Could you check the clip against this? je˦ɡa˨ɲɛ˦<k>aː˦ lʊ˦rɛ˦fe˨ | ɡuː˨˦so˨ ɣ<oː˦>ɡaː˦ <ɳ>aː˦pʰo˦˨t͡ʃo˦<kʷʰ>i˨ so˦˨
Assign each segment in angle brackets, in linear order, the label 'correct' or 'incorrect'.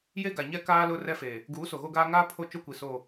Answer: correct, incorrect: o˦, incorrect: ŋ, incorrect: kʷ

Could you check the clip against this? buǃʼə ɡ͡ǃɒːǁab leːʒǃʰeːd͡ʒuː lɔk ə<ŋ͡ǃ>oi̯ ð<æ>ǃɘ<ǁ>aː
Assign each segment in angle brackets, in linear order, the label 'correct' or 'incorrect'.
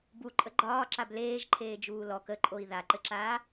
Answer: incorrect: ǃʼ, incorrect: a, correct

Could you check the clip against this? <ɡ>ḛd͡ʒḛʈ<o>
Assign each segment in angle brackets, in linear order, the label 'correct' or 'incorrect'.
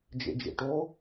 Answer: incorrect: d͡ʒ, correct

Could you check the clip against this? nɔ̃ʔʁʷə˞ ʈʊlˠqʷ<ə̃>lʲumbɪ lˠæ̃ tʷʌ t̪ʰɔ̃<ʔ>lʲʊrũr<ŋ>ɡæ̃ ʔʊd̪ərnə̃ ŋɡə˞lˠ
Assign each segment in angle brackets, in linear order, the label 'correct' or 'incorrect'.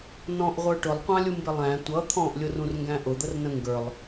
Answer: incorrect: ɑ̃, correct, correct

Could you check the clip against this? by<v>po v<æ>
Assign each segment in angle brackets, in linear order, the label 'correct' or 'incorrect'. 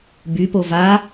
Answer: incorrect: none, incorrect: a

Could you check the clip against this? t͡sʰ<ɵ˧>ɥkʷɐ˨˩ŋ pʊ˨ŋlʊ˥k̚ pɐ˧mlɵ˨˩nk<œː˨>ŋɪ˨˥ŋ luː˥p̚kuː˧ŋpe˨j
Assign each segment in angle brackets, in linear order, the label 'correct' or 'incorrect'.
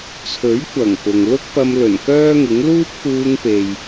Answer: incorrect: ɵ˨˥, incorrect: œː˥

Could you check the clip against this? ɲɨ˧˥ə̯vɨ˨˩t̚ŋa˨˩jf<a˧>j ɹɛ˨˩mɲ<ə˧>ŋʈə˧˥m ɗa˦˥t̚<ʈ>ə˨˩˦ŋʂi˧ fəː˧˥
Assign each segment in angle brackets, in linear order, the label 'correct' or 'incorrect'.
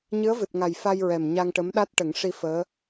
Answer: correct, incorrect: a˧, correct

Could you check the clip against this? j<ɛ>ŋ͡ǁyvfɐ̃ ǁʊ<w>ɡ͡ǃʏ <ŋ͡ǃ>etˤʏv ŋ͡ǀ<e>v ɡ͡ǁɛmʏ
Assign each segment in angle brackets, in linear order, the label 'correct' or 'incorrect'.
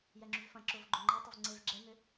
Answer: correct, incorrect: v, correct, correct

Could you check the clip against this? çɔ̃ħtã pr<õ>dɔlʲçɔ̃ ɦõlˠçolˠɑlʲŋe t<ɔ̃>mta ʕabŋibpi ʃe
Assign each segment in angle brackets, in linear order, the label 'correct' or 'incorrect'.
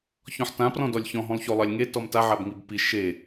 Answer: incorrect: ɔ̃, incorrect: ɔ

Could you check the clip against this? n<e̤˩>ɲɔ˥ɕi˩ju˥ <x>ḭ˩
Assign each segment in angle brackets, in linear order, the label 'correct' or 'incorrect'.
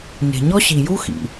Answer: correct, correct

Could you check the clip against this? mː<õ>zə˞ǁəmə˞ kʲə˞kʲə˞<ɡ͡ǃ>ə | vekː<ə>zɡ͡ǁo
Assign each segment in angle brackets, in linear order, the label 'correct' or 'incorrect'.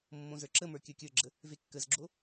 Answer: correct, incorrect: ɡ͡ǁ, correct

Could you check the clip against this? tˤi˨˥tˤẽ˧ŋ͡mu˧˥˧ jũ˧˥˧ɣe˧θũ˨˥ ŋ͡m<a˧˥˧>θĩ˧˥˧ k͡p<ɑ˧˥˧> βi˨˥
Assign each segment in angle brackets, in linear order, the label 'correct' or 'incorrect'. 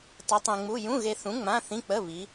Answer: incorrect: ã˧˥˧, incorrect: ə˧˥˧

